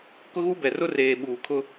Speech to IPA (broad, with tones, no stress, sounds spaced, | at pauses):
k ʊ˦ ɣ u˦ b ɛ˨ r ʊ˦ r eː˨ ɓ uː˨ kʰ ʊ˦